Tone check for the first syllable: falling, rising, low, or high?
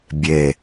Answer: low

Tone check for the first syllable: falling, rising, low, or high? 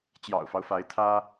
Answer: low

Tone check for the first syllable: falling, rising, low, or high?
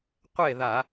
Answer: falling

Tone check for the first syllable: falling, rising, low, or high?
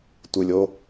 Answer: low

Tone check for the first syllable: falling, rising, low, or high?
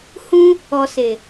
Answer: high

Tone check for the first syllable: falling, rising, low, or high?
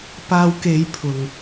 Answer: low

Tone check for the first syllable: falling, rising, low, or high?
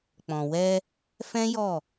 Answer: low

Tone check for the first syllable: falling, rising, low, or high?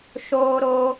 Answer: high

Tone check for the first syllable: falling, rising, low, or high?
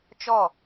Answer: falling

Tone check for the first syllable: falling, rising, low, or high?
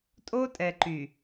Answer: high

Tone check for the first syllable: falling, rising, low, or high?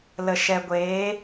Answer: low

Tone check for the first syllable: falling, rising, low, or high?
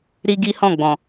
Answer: high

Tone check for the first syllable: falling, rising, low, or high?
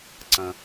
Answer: low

